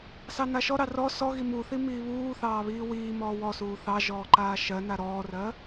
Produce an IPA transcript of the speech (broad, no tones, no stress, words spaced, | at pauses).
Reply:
sɑnaʃɔɾɑ rɔ sɔ ɣimuθi miːβuːθɑː βiːwiːmɔː wɔsuː θɑ ʒɔːǃaːʃɜna ɾɔːrɜ